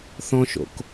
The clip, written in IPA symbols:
θ ɔ̃ ʃ o̰ k

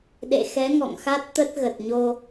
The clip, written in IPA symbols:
ɗ ḛ˧˨ x ɛ˨˦ ŋ ɔ̰˧˨ ŋ x a˦˥ t̚ t̪ ə˦˥ t̚ ɣ ə˨˩ t̚ ɲ o˧

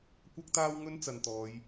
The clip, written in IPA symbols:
kʷ ɐ˥ k̚ t̪ aː˥ w ŋ ɵ˥ n t͡s ɐ˨ n t̪ ɔː˨˧ j

